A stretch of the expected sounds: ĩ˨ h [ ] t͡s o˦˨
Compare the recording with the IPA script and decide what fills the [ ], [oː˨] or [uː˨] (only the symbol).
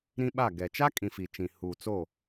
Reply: uː˨